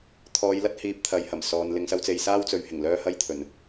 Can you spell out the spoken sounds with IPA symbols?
t̪ʰ ɔː˨˧ j l ɐ˥ t̚ h iː˨ p̚ t̪ʰ ɐ˨˧ j h ɐ˨˩ m s ɔː˨ n l ɪ˨ ŋ s ɐ˧ w t͡s e˨ j s aː˥ w t͡s ɵ˨˧ ɥ h ɪ˨˩ ŋ l œː˥ h ɐ˥ j t̪ʰ ɵ˨˩ n

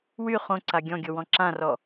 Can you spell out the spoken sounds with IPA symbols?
w y χ õ ǀ a ɡʲ ɔ̃ ɡʲ o w ɔ̃ ǁ ã r ɔ

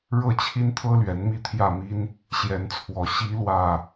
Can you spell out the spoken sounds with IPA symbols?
ɻ ɤ˥˨ t͡ɕʰ i˦ n t̪ʰ ɤ˦ l ɥ ɛ˨˦ n m i˥˨ t̪ʰ j ä˥˨ m i˦ n | ɕ j ɛ˨˦ n t͡sʰ w ɔ˨˩ ɕ i˨˦ l w ä˨˩

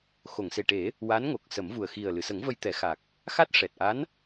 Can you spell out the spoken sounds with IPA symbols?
x o˨˩˨ ŋ s e˨˩ ʈ e˨˩˦ | w a˧˥ n ŋ o˨˩ k̚ s ə˨˩˦ m v u˨˩ ə̯ x i˨˩ ə̯ l ɨ˨˩˨ s ə˨˩˦ ŋ v ə˧ j t̪ ɛ˨˩˦ x a˨˩ k̚ | x a˦˥ t̚ ʂ ɛ˨˩ t̚ ʔ a˧˥ n

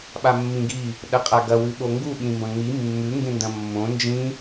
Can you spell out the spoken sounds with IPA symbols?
ɓ a mː ĩ ɡ i | ɗ ɐ qʼ a ɡ ɐ w ʉ ɓ o ŋ ɡ u ɓ ĩ m b ɐ̃ ŋ͡m i mː ʉ ŋ ɡ ẽ n d ɐ̃ mː õ n d͡ʒ ĩ

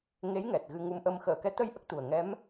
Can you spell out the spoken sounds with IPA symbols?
ŋ e˧˥ j ŋ ɛ˨˩ t̚ ɣ ɨ˧ ŋ u˧ m ʔ ə˧ m x əː˨˩˨ k ɛ˧˥ t̪ ə˧ j ʔ ə˦˥ k̚ t̪ u˨˩ ə̯ ŋ ɛ˧˥ m

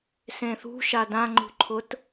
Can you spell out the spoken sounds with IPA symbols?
s ẽ θ ṳ ʃ a d ã ŋ͡ǃ ṳ ǃʰ ʊ t

